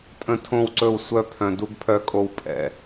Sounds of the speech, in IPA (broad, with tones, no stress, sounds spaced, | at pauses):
tʼ ə̃˧ tʰ õ˦˨ w ǀ ɵ˦˨ w sʷ œ˦ pʰ œ̃˧ d u˦ ɡ pʰ œ˦ kʼ o˦ w pʼ ɛ̰˧